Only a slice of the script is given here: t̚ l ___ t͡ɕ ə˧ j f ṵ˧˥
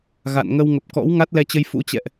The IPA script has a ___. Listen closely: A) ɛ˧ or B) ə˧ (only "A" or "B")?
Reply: A